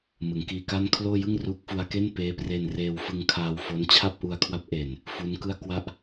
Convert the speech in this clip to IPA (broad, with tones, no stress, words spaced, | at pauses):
mɯ˩˦ŋkiː˧ka˥˩n kʰloː˥˩jɯ˥˩ŋruː˦˥k̚ fu˧a̯ke˥˩n peː˦˥pre˧nreː˧wfɯ˧ŋ kʰaː˧wfo˦˥n t͡ɕʰa˥˩p̚ʔu˧a̯ kʰwa˦˥p̚ʔe˨˩n | fu˦˥nkɯ˥˩a̯kwa˥˩ʔ